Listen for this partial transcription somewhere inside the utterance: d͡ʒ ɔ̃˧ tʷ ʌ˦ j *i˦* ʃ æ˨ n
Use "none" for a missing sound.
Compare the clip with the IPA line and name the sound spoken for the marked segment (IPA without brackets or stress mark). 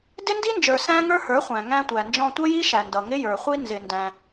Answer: i˦